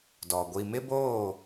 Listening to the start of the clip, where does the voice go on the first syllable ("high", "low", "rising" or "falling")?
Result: low